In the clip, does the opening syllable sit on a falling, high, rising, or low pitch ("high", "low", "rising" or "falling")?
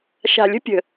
low